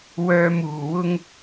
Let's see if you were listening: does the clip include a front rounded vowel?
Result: yes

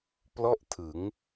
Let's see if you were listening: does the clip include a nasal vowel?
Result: no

